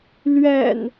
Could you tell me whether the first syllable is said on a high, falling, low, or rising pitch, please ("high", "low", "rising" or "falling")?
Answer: low